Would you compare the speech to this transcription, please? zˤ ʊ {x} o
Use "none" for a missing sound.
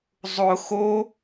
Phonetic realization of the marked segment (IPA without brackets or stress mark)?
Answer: x